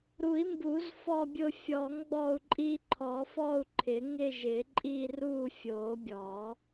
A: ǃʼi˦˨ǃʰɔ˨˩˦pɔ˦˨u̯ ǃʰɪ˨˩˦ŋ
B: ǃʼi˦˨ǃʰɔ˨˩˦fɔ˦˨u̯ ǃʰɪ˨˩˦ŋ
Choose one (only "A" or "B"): B